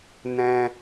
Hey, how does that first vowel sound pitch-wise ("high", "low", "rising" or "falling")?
high